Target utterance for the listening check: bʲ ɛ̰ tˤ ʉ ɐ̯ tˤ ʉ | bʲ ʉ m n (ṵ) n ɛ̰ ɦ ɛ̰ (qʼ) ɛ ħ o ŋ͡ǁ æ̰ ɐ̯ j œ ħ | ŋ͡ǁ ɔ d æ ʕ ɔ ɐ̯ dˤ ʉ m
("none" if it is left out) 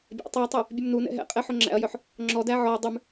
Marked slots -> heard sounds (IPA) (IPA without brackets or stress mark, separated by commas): u, qʼ